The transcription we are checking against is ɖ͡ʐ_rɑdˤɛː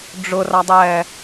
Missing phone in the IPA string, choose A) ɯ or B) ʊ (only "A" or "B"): B